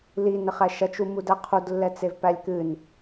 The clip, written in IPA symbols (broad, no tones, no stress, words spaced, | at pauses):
linɘχæ ʃɐt͡ʃumudæ qʰudlːɛt͡sevpælʲ kɨn